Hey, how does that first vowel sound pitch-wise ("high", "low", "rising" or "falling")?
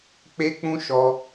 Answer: high